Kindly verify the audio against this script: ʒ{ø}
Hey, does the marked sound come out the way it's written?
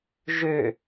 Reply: yes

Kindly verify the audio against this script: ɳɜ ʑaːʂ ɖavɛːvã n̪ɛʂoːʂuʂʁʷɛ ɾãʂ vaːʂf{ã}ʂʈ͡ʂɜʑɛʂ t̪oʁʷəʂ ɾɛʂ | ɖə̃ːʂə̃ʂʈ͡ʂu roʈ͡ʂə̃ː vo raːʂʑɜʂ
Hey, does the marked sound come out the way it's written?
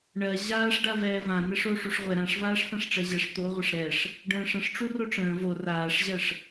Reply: yes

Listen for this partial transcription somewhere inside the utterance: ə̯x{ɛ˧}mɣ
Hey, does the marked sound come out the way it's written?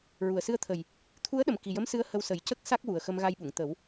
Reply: no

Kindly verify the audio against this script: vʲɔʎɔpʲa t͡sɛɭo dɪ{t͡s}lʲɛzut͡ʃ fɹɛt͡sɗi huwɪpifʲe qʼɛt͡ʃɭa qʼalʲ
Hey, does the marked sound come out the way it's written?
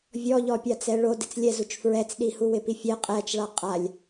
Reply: yes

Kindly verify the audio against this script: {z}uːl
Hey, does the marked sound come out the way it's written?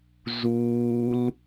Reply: yes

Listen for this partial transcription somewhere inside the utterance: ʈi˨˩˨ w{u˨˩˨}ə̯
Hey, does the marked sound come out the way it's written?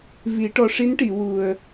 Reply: no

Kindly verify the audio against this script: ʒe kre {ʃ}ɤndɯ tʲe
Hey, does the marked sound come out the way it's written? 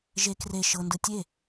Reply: yes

